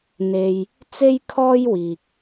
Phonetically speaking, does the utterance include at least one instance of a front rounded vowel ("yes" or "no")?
no